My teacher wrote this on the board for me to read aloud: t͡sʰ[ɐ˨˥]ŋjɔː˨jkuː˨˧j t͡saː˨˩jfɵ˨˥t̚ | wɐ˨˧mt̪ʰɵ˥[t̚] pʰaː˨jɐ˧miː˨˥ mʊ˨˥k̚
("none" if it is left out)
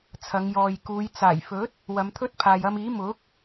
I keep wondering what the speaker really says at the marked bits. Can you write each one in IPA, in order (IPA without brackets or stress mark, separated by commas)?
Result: ɐ˨˧, t̚